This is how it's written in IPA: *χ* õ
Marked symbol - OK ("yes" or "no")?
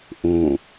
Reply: no